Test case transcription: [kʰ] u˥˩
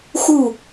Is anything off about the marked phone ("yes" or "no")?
yes